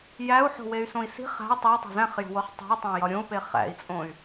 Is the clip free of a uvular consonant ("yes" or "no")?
no